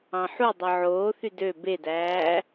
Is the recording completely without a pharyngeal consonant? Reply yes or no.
no